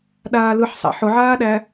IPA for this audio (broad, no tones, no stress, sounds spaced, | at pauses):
ɗ aː l ɯ ħ sˤ æ̰ ħ ʊ ʕ aː ɗ æ